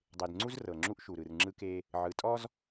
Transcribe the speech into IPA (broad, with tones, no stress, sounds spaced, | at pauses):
dˤ e˨ d ŋ͡ǀ u˦ z r ɤ˨ ŋ͡ǁ u˦ ʔ ʃ u˨ ɾ ɯ˨ r ŋ͡ǁ ɯ˦ k e˦ | ʕ ɯ˨ tʼ ɔ˦ z